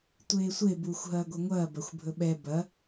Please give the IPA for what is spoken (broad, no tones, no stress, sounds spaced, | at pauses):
tʷ eː sʷ e b uː xʷ ɦ ɐː ɡʷ ɐ ŋʷ ɐː b ɐ xʷ bʱ ɵ ɓ ɛ b ɐ